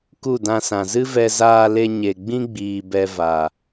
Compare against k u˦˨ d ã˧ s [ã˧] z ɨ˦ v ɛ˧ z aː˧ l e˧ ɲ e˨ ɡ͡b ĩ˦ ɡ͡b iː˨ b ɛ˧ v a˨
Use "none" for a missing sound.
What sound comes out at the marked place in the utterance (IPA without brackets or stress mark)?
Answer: ã˨